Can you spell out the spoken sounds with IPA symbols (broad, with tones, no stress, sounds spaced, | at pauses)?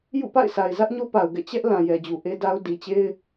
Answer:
j ṵ˦˨ p a̰˦˨ ɪ̯ s a˨ ɪ̯ z ä˦ ʔ ɲ o˦ p a˨ ʊ̯ ɡ ɛ̰˦˨ t͡ɕ ɛ˦ ʔ l ã˨ j ɛ˨ d͡ʑ u˨ ʔ e˦ d a˦ ʊ̯ d i˨ t͡ɕ e˦ ɪ̯